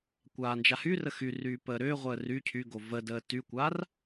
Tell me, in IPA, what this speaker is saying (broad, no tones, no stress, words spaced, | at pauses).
kʷaːnd͡ʒahyrə xyryː pəːɾʏːʁʷəː ry cʰyɡo vədəː tykʷaːr